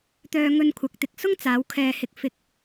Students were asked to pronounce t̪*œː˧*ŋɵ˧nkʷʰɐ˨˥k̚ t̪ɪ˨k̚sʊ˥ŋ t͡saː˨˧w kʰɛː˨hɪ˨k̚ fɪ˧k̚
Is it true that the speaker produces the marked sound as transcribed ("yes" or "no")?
yes